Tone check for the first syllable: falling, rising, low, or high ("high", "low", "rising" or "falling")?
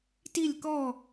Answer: falling